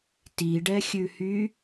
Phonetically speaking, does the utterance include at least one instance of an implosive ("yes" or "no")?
no